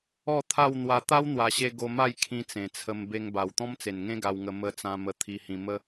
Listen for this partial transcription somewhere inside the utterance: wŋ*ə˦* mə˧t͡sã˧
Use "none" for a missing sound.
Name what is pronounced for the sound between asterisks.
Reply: ə˧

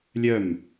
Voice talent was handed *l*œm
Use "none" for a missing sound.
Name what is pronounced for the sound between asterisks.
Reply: lʲ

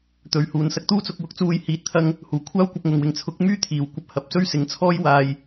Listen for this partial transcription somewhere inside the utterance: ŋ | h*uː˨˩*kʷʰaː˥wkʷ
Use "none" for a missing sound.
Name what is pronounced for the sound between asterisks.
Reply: uː˨˩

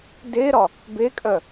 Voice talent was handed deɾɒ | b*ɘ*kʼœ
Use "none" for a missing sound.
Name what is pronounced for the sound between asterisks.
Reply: e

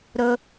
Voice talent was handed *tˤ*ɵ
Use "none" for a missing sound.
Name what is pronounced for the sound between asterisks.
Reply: ɾ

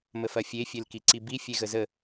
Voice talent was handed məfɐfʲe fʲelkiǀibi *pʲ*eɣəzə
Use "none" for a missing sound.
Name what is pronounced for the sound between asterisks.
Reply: fʲ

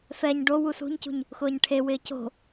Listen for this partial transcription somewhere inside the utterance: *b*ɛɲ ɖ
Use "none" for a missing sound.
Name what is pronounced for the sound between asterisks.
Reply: f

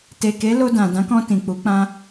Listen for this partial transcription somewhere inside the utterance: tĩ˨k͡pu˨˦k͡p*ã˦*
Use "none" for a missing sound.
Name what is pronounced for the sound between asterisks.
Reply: ã˦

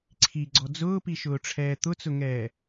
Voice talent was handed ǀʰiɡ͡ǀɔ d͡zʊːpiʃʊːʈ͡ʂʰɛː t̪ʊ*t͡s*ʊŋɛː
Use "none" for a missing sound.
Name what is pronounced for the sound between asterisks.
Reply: t͡s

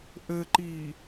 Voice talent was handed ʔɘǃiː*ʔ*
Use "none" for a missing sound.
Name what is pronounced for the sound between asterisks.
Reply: none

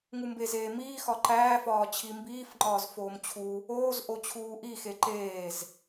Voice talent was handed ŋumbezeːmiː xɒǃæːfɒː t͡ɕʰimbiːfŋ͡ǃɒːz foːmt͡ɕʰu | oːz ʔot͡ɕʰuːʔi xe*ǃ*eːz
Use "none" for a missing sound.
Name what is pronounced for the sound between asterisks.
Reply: ǃ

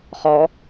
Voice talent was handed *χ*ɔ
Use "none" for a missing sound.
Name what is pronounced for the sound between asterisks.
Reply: χ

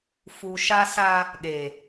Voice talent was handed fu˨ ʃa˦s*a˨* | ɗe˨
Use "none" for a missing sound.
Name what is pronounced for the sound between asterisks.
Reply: a˦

